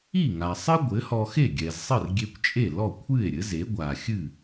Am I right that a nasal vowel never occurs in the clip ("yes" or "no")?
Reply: yes